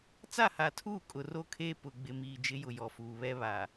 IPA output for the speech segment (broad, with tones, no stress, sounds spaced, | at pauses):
t͡s a˦˨ h a˨ tʰ uː˦˨ kʼ ʊ˨ r o˦ kʰ eː˦ p ʊ˨ ɡ͡b ɪ˨ m iː˨ d͡ʒ ɪ˨˦ j ʊ˨ j ɔ˨ f uː˨ β ɛ˦ β a˨